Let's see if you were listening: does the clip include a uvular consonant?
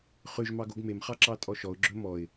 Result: yes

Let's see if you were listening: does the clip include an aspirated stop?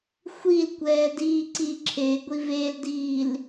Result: yes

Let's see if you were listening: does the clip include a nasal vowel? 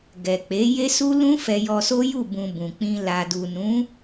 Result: yes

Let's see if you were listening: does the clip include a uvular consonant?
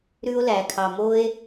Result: no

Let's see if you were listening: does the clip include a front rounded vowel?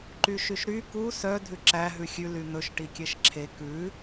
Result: yes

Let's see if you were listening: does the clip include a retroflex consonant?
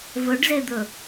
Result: yes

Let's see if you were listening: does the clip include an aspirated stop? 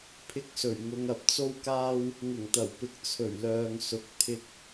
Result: yes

